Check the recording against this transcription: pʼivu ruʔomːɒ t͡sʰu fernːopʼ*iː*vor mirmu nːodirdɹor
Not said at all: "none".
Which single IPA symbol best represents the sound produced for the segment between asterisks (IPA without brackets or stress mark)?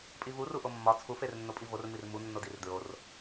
i